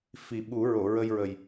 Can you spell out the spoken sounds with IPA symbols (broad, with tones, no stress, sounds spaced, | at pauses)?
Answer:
f i˨˩ ɓ u˨˩˦ ɹ o˨˩˨ ɹ ə˧ j ɹ ə˨˩ j